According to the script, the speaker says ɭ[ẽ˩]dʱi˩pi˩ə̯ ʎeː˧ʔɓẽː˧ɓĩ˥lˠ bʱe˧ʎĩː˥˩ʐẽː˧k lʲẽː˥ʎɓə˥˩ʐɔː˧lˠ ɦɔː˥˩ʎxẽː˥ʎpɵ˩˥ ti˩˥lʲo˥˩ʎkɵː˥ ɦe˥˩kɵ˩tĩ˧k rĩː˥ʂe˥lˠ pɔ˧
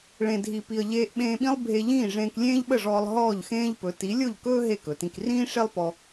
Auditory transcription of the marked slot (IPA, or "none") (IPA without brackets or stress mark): ẽ˩